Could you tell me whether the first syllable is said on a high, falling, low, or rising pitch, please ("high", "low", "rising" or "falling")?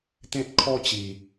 high